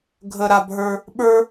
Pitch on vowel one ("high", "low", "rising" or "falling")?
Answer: high